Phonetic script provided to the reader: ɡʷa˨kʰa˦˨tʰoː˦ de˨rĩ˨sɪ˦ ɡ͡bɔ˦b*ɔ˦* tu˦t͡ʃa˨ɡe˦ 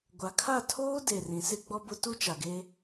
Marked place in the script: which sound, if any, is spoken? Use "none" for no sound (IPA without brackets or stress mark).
ʊ˦